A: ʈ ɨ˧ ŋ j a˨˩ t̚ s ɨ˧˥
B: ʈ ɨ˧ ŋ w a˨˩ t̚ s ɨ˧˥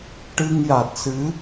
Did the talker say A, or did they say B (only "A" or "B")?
A